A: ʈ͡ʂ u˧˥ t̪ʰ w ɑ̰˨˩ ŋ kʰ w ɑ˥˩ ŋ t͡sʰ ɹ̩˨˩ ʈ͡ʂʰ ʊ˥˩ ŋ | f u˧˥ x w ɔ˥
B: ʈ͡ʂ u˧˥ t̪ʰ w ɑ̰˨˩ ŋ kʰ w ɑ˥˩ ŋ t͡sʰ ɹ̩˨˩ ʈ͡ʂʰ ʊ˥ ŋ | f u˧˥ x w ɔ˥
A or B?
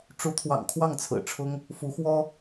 B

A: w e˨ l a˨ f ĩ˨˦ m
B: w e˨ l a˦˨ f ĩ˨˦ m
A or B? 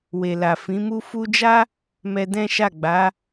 A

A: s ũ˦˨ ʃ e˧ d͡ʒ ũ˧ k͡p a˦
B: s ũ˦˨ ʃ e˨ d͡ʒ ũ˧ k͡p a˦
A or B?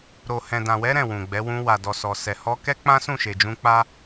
B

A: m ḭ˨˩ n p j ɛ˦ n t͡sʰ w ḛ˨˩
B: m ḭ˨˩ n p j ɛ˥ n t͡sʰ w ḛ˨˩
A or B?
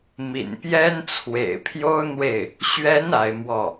B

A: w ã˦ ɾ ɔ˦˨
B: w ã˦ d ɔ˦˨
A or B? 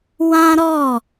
A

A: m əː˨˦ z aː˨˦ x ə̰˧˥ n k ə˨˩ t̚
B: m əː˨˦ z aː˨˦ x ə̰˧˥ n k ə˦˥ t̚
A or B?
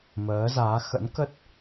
B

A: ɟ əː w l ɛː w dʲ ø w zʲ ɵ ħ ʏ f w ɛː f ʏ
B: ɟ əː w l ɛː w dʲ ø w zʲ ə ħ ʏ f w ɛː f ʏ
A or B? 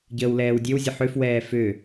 B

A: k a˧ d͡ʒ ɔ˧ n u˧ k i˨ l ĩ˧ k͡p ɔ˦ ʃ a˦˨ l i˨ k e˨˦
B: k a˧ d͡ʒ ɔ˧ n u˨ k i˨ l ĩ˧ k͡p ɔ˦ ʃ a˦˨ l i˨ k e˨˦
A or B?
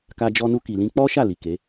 A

